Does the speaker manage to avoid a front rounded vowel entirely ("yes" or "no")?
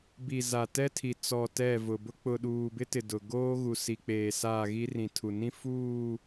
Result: yes